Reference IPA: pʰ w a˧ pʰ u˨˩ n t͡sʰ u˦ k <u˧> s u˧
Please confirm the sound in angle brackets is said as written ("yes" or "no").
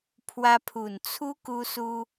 yes